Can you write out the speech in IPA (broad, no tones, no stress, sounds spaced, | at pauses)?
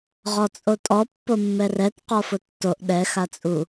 ʁ ɔ t͡sʼ o tʼ ɔ pː o mː ɛ r ɛ t q ɔ f ʊ tː o ʔ ɗ ɛ x a t͡sʼ u